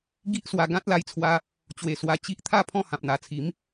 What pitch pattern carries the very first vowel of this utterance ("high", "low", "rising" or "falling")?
high